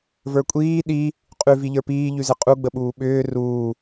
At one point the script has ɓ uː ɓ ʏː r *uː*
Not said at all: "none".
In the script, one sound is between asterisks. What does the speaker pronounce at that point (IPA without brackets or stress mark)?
uː